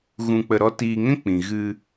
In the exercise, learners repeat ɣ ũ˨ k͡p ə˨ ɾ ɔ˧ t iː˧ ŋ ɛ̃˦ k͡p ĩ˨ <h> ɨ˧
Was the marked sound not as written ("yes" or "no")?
yes